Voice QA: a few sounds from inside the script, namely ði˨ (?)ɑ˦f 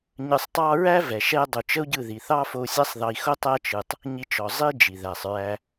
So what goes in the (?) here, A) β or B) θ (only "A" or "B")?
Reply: B